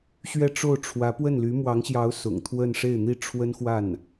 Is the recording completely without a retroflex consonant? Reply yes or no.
no